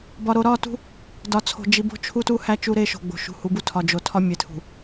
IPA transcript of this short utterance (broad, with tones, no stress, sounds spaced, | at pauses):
b ɒ˨ ɾ o˨ ɾ ɒ˦˨ t ṳ˦ | d ɒ˨ t͡sʰ o̤˨ d͡ʒ i˨ b o̤˦˨ t͡ʃʰ u˦ t u˦ h æ˦ t͡ʃ u˦ ɾ e˦ ʃ o̤˨ ɡ͡b o̤˨ ʃ ṳ˨ h u˨˦ b u˦ tʰ ɒ˨ d͡ʒ o˨ tʰ ɒ˦ mʲ e˨ tʰ ṳ˨